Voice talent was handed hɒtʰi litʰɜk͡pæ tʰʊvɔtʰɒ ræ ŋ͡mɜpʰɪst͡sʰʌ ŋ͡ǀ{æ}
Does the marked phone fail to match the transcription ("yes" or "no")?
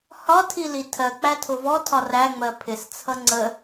yes